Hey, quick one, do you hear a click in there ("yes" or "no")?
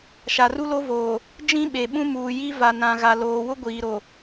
no